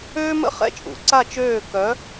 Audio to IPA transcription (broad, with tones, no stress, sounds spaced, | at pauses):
øː˥ m ə̰˥ χ ɛ̰˥˧ t͡ʃʼ ṵ˩˧ ǀ a˥˧ t͡ʃ øː˥˧ k œ˧˥